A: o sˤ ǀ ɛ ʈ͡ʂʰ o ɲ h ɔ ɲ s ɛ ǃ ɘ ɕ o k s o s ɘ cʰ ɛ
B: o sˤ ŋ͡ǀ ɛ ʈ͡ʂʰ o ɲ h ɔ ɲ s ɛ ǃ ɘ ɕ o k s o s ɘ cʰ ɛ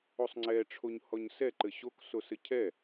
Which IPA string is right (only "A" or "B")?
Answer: B